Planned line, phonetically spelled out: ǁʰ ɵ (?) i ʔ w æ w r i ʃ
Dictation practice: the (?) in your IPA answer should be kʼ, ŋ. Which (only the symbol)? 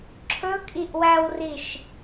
kʼ